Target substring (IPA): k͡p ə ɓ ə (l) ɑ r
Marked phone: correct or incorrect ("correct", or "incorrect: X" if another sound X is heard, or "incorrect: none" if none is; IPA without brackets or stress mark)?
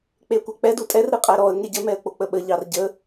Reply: incorrect: ʎ